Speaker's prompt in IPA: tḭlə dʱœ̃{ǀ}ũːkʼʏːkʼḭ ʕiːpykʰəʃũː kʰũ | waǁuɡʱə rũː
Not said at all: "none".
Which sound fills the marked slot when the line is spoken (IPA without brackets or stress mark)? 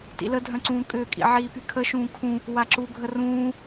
ǀ